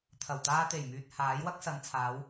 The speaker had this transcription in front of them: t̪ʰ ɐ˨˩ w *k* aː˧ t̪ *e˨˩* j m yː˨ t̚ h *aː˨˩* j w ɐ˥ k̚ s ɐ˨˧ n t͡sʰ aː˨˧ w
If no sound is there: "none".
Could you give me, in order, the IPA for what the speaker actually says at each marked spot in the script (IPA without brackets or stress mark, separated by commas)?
t̪, e˨˩, aː˨˥